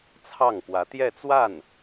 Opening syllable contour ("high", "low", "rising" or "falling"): falling